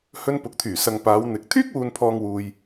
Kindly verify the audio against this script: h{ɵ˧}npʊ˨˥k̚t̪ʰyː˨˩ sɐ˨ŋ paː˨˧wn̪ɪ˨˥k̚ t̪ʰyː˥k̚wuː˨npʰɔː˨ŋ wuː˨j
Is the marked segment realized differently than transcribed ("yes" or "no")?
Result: no